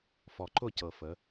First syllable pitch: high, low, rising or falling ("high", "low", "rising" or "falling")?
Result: low